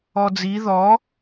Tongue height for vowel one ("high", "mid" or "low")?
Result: mid